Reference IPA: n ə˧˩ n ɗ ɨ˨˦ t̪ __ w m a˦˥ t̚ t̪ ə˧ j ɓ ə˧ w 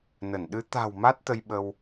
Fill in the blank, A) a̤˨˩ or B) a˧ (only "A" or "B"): A